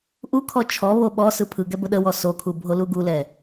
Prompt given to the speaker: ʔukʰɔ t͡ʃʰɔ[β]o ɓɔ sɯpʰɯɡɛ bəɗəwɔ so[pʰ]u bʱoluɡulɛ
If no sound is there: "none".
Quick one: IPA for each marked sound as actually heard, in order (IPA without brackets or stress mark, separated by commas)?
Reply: β, kʰ